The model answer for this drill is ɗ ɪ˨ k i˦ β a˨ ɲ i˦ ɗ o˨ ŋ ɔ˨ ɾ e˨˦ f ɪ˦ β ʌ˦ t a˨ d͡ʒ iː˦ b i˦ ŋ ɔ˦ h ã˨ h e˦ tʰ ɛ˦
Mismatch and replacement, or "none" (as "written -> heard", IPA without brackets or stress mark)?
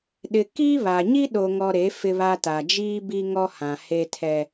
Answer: ʌ˦ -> a˦